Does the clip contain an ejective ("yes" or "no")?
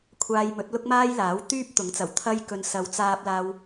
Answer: no